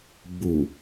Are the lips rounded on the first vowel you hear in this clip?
yes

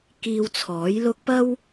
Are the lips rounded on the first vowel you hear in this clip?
no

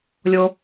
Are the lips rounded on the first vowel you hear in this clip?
yes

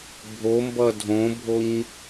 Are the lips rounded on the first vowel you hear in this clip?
yes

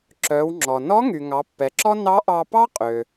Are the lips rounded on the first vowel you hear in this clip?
yes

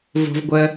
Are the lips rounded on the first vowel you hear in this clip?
yes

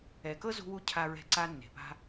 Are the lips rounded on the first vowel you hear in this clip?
no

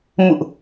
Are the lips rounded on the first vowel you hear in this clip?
yes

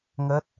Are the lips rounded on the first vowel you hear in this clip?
no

